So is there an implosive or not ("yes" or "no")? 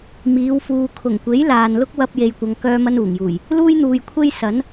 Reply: no